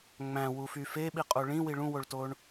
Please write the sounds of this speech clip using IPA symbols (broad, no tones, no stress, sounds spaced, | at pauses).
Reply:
ŋ͡m æ̃ w u f y f e ɓ i qʼ o ɭ ĩ w i ɭ ũ w o ɭ t oː ɳ